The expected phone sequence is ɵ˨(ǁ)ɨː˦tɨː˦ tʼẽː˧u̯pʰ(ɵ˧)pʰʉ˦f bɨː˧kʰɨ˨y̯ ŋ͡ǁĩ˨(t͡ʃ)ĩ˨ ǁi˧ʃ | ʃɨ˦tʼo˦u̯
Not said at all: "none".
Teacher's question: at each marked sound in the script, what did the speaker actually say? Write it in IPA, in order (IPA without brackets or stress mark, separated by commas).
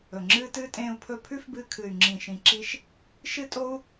ŋ͡ǁ, ɵ˧, ʃ